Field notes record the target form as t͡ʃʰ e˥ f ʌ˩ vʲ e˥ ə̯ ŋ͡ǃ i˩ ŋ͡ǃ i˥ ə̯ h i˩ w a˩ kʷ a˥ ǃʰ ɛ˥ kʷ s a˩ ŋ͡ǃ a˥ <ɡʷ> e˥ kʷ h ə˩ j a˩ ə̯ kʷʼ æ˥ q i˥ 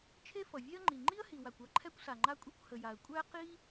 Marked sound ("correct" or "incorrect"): incorrect